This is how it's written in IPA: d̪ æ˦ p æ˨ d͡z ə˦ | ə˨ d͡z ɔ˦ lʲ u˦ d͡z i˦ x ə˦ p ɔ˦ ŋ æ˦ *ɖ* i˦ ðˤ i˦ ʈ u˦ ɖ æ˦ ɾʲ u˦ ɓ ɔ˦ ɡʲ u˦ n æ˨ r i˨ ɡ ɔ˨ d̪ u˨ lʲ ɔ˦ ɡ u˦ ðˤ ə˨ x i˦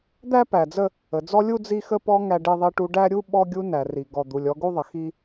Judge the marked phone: correct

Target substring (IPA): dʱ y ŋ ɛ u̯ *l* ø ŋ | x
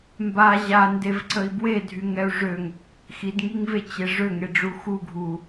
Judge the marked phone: incorrect: ʐ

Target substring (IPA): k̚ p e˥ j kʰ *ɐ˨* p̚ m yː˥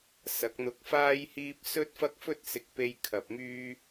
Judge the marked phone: incorrect: ɐ˧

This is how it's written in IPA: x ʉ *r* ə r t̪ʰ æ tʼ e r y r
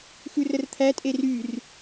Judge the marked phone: correct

